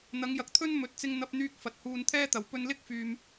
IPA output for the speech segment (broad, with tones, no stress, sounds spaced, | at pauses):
n̪ ɐ˨˧ ŋ j ɐ˨ k̚ t̪ʰ ɵ˥ n m ɵ˨˥ t̚ t͡s ɪ˧ ŋ n̪ ɐ˧ p̚ n̪ yː˧ k̚ f ɐ˨ t̚ h uː˧ n t̪ʰ ɛː˥ t̪ ɐ˨ w p ɵ˧ n l ɪ˥ k̚ f yː˧ m